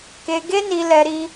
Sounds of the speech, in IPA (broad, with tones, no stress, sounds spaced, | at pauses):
k e˧ ɡ e˦ n i˧ l ɛ˧ ɾ i˦